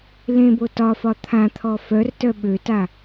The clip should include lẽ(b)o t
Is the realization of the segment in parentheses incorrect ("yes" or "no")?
no